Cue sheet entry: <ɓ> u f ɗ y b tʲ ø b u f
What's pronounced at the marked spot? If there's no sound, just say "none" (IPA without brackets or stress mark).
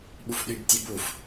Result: ɓ